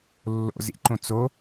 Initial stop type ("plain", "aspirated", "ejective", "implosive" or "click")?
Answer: click